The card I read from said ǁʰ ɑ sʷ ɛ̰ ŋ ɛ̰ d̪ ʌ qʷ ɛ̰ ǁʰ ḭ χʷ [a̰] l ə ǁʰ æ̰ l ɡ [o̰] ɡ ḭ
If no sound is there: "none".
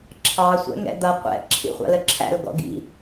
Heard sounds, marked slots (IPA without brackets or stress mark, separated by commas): ɑ̰, ɔ̰